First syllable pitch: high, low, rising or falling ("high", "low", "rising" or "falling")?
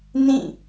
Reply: falling